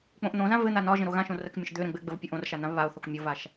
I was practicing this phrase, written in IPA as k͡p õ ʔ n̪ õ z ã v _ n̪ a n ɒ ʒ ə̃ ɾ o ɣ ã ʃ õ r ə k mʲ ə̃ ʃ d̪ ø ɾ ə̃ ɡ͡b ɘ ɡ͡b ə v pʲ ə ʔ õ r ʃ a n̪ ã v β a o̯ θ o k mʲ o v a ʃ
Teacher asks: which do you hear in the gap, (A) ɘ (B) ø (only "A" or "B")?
A